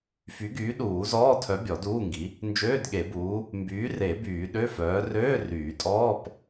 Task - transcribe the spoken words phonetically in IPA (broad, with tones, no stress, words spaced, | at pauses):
fy˨˥ɡyː˨˥ ɗuː˨˩˦zɔː˧˥˧tʰœ˨˥ bʲɔ˨˩˦duː˧˥˧ŋɡi˨˥ | nd͡ʒøː˧˥˧dɠe˨˩˦buː˨˥ | mbyː˨˥ re˨˩˦ byː˨˩˦ɗø˧˥˧fœː˨˥ røː˧˥˧ ryː˨˩˦tʼɔː˧˥˧p